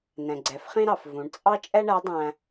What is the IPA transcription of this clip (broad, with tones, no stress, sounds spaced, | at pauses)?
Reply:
n ɛ̃˩ ɡ͡ǀ ɛ˩˧ f χ ĩ˥ ɾ ɑ˩ f v ũ˩˧ ɳ t͡sʼ ɑ˥ t͡ʃʼ ɛ˥ ɳ æ˧˥ dˤ æ̃˧